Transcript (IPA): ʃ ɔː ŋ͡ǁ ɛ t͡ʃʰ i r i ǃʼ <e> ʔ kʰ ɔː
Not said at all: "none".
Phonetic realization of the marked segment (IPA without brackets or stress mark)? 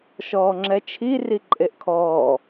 e